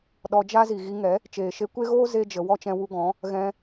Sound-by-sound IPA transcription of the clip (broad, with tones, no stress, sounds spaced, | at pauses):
ɗ ɔ˧ d͡ʒ a˦ z i˨ ɣ i˧ ŋ ɛ˨˦ | t͡ʃ eː˨ ʃ e˧ kʷ e˦ ɣ oː˦ z e˦ d͡ʒ ə˧ w ɔ˦ t͡ʃ ɛ̃˧ w u˧ ɡ ɔ̃˨˦ | ɣ ɛ̃˧